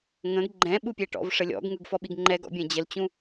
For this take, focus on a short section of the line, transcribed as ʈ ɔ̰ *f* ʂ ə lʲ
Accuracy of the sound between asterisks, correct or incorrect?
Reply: incorrect